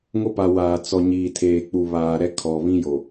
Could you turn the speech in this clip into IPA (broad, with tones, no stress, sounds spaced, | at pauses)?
ŋ o˦ p a˨ w aː˨ t͡s ɔ˨ ɲ iː˨ tʰ eː˨ k͡p u˨ β aː˨ ɾ ɛ˦ kʰ ɔ˨ β ĩ˦ j o˨